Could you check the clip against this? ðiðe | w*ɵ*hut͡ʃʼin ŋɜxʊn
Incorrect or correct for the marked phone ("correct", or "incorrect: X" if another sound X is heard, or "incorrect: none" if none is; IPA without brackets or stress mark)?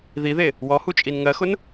incorrect: ɔ